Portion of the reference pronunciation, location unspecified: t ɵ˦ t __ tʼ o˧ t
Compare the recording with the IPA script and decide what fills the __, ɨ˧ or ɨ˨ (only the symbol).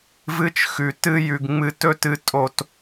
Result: ɨ˧